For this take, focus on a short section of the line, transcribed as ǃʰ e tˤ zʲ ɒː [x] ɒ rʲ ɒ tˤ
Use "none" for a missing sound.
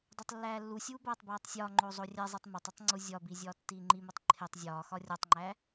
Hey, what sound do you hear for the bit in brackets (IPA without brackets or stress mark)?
x